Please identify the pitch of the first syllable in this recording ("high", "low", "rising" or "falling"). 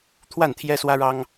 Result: falling